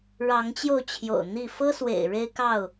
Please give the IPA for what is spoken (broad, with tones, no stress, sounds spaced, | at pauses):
ɻ ɑ˨˦ ŋ t͡ɕ j o˧ ʊ̯ t͡ɕʰ j o̰˨˩ ʊ̯ n̪ i˥˨ f ɤ˦ s w ḛ˨˩ ɪ̯ ɻ e˦ ɪ̯ k ɑ˥˨ ʊ̯